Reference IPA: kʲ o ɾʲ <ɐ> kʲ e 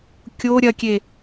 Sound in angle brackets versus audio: correct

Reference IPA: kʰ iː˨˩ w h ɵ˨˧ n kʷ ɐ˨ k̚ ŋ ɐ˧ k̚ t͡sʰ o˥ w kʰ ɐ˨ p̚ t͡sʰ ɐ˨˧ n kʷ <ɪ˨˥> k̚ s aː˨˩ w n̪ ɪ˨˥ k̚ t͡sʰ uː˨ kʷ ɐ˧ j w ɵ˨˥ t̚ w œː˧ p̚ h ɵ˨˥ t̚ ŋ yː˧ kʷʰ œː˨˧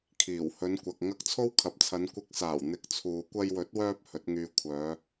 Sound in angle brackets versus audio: correct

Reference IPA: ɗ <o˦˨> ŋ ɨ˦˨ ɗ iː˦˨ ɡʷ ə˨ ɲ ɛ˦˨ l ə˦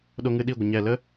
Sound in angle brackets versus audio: incorrect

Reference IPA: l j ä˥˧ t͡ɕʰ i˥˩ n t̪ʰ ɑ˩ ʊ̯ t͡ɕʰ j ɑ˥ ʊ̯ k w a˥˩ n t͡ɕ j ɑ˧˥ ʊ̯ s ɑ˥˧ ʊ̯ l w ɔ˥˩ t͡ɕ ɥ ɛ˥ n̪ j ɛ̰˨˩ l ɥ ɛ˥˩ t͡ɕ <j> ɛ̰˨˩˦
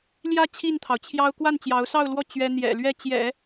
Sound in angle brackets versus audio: correct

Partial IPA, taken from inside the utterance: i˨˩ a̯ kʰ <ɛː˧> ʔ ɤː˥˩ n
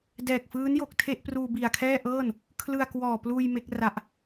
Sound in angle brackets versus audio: incorrect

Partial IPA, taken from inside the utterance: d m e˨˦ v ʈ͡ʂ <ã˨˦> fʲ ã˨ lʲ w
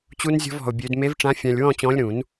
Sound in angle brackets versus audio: correct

